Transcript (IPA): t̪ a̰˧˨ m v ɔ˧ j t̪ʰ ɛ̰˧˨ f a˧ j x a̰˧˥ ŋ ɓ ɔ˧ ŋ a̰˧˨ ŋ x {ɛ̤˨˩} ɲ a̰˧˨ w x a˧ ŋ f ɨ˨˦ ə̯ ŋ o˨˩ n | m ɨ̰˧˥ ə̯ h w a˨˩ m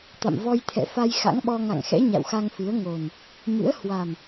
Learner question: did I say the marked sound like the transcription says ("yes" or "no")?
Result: no